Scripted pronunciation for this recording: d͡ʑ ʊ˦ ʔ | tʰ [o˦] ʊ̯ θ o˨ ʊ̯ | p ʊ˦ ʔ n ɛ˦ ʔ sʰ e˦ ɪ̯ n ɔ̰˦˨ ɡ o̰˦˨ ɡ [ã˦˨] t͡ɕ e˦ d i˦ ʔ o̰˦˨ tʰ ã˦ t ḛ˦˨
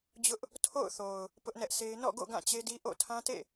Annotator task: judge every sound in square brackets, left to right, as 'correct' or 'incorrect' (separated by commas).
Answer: incorrect, correct